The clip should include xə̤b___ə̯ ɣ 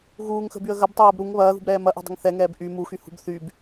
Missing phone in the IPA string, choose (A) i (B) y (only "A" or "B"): B